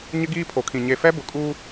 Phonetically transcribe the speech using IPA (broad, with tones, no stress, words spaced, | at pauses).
ɲɪ˦ɡiː˦pʰo˨kʰĩ˨ ɲe˨fɛ˦bʊ˨kʼuː˦